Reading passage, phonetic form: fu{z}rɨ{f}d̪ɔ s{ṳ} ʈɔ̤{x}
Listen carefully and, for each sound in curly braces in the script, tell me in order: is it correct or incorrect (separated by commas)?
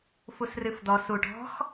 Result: incorrect, correct, incorrect, correct